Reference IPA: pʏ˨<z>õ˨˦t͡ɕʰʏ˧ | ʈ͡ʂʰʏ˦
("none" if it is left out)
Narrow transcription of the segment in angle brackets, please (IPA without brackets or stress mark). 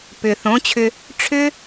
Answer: θ